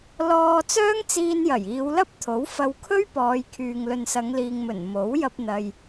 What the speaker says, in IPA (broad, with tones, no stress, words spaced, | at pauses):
lɔː˧ t͡sœː˥ŋt͡siː˧njɐ˨˩j iː˨˧wlɐ˥p̚t̪ʰo˨˥w fɐ˧wkʰɵ˥ɥpɔː˨˧jkʰyː˨ŋ lɵ˨nsɐ˨˧ŋliː˨ŋmɵ˨˩n mo˨˥w jɐ˧p̚n̪ɐ˨j